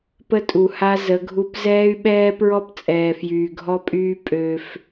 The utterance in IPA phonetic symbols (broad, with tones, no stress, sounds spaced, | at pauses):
p ə˦ tʼ u˨ h a˦ z ə˨˦ ɡʱ u˦ p z ɛː˦ y̯ ɓ ɛː˦ p ɹ ɔ˦ p t͡sʼ ɛː˨ f j yː˨ ɡʱ ɔ˦ pʼ yː˦ pʼ ø˦ f